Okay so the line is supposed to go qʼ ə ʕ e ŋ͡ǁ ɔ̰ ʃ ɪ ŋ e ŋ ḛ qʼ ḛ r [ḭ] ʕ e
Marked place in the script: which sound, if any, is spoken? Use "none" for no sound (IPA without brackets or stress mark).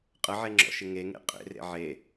ḛ